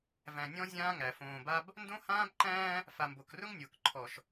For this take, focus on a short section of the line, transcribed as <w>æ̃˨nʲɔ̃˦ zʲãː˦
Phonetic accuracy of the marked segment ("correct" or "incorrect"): incorrect